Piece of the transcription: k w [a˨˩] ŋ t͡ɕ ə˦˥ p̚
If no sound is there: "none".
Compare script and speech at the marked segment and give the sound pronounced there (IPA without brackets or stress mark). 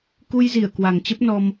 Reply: a˨˩